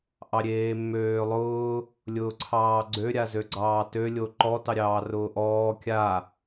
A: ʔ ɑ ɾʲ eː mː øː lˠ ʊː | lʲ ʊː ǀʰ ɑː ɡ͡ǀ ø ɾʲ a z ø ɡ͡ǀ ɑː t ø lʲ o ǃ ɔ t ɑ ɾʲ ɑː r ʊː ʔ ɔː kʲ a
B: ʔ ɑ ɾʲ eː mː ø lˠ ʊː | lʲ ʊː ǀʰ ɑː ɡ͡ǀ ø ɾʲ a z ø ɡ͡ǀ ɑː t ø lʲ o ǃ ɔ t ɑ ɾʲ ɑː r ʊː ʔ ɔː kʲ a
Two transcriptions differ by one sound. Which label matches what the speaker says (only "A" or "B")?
A